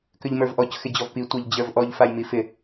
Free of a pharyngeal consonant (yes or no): yes